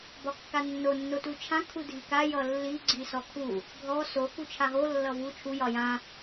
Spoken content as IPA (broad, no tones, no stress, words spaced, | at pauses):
bɒkːanːo nːotut͡ʃʰã kʰudʱika jʌlːi ɡ͡ǀisɔkʰu | ɡʱɔ so kut͡ʃʰaɦo lːʌvu t͡ʃʰu jɒjã